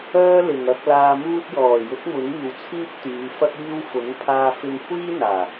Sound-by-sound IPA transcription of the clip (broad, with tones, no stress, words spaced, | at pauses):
œː˥lɪ˨ŋɐ˧k̚ laː˧muː˥t̚ jɔː˨˩jʊ˨˥k̚ mʊ˨˥ŋiː˨wt͡sʰiː˥p̚t̪yː˨˧ fɐ˥k̚iː˥w fʊ˨˥ŋ pʰaː˧fɪ˧ŋkʷʰiː˥n̪aː˨˩